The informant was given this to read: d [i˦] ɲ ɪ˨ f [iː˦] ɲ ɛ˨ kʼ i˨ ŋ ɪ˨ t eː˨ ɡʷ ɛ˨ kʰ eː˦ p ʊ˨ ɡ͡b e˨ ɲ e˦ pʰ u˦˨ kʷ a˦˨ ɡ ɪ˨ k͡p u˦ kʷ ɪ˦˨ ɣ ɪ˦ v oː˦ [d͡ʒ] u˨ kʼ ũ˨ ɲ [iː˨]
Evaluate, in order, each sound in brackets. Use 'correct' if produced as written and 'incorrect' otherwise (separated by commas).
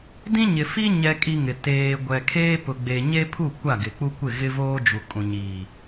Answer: incorrect, incorrect, correct, correct